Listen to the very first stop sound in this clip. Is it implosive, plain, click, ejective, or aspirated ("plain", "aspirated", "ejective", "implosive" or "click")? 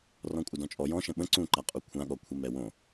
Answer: ejective